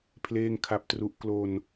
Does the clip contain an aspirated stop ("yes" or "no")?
yes